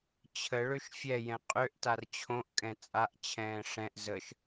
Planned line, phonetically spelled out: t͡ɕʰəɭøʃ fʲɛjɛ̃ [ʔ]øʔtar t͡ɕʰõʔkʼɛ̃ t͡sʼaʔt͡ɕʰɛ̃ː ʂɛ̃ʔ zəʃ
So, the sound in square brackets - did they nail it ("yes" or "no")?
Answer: no